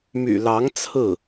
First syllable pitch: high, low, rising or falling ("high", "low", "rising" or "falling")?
low